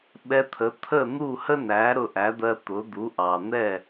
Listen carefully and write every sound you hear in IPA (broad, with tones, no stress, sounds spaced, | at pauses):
ɓ ɛ˧ t̪ʰ ə˩˥ t̪ʰ ə˥˩ n̪ u˥˩ h ə˥ n æ˩˥ ɾ ʊ˧ ʔ æ˩˥ d̪ ɜ˧ t̪ ʊ˩˥ d̪ u˩˥ ʔ ɑ˩ n̪ ɛ˥˩